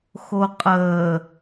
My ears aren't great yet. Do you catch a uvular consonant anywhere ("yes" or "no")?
yes